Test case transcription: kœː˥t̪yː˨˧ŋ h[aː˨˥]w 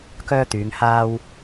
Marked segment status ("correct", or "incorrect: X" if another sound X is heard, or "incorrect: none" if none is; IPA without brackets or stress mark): incorrect: aː˥